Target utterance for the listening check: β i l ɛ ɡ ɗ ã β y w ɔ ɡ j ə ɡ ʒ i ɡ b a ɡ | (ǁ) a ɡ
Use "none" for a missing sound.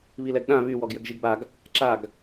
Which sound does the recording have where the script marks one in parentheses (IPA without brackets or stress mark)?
ǁ